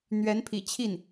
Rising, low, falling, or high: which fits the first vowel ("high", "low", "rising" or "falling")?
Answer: rising